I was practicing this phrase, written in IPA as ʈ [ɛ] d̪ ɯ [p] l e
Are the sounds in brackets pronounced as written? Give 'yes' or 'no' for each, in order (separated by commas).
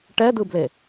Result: yes, no